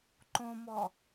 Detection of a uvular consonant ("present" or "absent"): absent